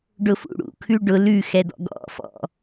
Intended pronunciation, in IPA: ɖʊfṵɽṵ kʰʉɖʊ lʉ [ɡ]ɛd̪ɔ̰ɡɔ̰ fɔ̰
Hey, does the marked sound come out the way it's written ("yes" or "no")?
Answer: no